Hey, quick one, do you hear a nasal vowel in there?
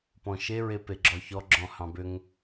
yes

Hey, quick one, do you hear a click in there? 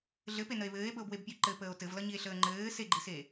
yes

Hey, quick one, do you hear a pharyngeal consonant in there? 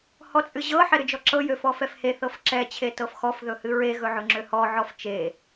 yes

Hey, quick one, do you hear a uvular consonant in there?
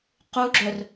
yes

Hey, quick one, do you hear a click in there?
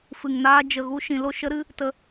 no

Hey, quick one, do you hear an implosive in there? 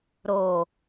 no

